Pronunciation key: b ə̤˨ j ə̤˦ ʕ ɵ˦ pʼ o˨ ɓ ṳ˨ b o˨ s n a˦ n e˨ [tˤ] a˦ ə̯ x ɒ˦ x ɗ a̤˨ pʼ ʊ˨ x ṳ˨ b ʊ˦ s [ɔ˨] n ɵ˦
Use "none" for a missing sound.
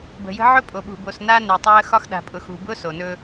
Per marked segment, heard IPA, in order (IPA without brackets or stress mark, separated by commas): tˤ, o˨